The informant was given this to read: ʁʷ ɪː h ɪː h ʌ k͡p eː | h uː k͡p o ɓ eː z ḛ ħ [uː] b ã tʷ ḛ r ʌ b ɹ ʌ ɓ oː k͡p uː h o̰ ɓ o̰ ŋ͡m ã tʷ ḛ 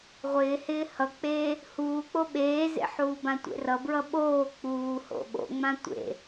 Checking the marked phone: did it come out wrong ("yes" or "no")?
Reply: no